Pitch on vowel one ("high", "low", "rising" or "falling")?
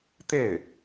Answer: falling